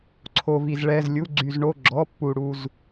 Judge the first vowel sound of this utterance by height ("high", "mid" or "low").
mid